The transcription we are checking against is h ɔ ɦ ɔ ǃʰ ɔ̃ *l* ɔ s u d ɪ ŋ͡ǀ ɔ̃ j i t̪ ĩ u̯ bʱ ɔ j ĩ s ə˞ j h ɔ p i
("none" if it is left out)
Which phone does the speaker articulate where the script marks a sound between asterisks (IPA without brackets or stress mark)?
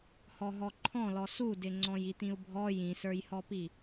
l